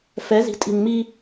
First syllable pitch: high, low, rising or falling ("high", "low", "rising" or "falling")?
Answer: rising